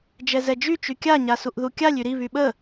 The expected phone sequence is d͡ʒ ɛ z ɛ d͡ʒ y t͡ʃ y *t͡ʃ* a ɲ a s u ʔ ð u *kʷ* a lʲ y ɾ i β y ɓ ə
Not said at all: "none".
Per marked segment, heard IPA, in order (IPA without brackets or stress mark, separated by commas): kʲ, kʲ